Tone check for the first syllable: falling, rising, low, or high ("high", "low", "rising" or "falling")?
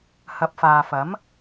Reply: rising